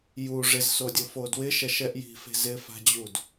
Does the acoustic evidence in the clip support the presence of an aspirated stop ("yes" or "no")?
no